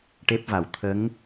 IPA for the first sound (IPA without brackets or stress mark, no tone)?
ʈ